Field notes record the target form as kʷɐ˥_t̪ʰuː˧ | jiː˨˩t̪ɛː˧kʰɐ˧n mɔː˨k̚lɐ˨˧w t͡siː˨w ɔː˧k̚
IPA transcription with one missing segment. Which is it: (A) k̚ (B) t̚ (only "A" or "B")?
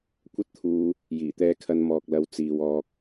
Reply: B